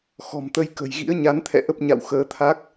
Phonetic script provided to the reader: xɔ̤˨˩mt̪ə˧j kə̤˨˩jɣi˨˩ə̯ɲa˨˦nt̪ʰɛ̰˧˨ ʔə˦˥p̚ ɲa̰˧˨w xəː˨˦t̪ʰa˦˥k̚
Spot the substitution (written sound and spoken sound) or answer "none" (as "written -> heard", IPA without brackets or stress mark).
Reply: i˨˩ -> ḭ˧˥